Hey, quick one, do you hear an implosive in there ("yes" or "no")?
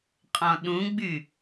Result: yes